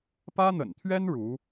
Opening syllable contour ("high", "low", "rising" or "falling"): high